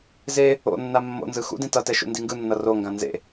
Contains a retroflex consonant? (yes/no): no